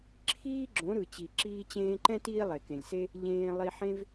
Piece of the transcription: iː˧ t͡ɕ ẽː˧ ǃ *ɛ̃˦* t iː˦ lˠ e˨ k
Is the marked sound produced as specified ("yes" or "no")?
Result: yes